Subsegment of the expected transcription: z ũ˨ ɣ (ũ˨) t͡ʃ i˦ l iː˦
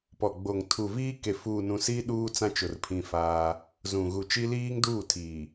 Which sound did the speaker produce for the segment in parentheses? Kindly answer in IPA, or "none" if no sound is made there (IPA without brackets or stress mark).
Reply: u˨